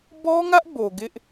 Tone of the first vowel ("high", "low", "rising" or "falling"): high